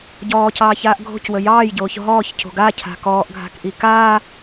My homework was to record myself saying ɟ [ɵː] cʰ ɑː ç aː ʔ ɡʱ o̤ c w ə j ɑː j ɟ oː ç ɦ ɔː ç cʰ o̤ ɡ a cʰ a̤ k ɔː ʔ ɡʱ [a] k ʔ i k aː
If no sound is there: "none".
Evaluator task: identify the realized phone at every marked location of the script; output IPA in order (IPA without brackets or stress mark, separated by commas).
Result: ɔː, a̤